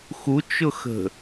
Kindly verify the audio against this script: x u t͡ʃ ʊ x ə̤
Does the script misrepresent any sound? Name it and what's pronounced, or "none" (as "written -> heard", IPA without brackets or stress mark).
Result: none